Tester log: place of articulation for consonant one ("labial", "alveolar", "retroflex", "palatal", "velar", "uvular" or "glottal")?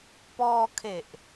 labial